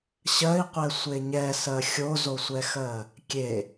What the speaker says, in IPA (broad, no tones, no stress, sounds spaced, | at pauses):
ɕ ɜ i̯ qʷ ɛ sʷ e ɲ ɛ s ɜ xʲ o z o sʷ ɛ x ɜ | kʲ e